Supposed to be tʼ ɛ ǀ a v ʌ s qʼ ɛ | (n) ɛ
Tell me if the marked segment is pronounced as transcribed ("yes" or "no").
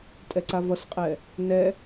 yes